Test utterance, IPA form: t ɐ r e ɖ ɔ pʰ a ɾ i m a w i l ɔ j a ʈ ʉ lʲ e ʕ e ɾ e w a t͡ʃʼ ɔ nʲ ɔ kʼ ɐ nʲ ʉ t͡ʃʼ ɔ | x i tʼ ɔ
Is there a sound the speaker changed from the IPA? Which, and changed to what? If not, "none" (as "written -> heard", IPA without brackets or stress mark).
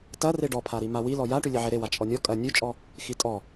none